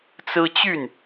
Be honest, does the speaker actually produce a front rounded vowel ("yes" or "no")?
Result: yes